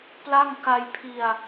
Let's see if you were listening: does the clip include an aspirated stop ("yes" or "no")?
yes